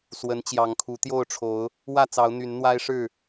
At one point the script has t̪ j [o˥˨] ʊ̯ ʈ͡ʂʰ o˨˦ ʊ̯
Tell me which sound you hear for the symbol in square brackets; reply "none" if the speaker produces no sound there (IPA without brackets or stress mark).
o˥˨